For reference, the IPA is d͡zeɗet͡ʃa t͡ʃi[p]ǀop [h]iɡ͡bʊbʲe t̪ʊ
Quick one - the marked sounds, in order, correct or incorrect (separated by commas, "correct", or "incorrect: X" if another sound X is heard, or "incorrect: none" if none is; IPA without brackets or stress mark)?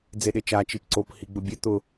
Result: correct, correct